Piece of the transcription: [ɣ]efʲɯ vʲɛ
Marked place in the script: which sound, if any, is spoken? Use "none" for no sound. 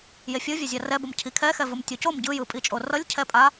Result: j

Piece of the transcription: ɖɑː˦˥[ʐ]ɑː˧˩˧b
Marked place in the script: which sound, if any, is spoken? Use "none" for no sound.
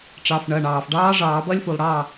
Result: ʐ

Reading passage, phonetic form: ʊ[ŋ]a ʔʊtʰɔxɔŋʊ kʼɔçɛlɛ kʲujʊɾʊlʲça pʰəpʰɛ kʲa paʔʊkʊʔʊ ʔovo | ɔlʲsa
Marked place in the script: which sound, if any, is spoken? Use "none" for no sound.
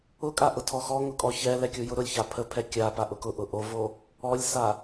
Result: kʼ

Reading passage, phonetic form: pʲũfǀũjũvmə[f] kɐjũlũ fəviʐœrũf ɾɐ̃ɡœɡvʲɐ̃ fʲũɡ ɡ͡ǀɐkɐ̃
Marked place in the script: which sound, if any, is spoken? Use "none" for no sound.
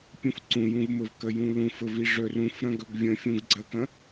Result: v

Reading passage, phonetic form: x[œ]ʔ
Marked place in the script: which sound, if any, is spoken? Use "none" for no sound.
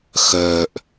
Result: œ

